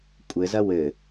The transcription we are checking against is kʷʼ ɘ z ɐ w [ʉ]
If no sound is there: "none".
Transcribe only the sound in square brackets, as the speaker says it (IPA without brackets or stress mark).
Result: ɘ